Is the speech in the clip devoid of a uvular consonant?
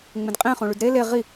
no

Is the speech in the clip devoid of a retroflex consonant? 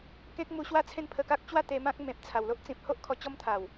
yes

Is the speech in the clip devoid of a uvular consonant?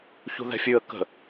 yes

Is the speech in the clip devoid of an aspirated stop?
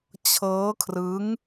no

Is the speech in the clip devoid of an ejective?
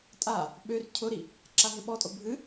no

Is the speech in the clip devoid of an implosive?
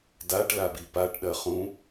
no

